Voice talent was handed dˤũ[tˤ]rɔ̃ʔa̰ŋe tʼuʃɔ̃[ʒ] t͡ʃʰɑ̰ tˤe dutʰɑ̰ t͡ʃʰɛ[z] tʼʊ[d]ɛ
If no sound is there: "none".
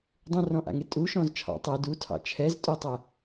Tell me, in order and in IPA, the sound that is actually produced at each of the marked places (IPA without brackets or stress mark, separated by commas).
none, z, z, tˤ